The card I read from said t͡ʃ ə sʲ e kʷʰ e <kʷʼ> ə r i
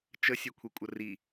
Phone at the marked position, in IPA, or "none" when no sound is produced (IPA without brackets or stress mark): kʷʼ